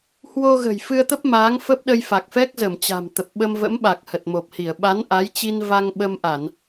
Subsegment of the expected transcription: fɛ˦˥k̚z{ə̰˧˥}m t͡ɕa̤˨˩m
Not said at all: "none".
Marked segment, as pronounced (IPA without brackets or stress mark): ə˧˩